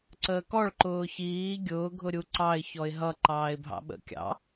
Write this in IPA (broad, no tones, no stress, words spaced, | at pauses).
ǀəːkɔɭ ǃʊːçiː ɡʲʊː ɡʱʊɾʲuǀɑɪ̯ çɔɪ̯ɦʌ ǃɑːɪ̯bʱɑ̰ɓə̰ kʲɑ̰